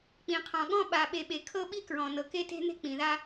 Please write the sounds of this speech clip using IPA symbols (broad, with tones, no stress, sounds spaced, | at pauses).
k͡p ĩ˩ qʰ ɔ̃˩ ɠ ɔ̃˦ ɓ a˨ ɓ e˨ ɓ e˨ kʰ ɤ˦ ɓ i˦ k ɹ ɔ̃˩ n ɤ˩ k e˥ t e̤˥ n̪ e̤˥ k͡p ĩ˩ ð a˦